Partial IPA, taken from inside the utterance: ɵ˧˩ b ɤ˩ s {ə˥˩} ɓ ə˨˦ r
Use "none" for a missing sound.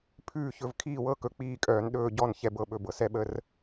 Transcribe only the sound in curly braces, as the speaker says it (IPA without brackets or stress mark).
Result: ɛ˥˩